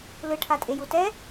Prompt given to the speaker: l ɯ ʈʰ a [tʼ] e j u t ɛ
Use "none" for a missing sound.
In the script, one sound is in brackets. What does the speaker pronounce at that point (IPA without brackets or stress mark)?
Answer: tʼ